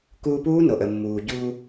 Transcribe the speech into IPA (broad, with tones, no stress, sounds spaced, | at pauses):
k uː˧ p uː˦˥ n o˩ ʔ ə˩ mː uː˩ ɟ uː˧